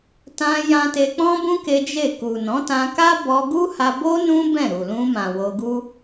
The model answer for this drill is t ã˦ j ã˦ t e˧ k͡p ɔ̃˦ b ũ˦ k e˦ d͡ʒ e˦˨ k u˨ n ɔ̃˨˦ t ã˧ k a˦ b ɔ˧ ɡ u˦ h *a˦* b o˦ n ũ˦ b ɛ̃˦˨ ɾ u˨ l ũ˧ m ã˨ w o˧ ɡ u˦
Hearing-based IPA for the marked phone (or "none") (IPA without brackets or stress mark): a˧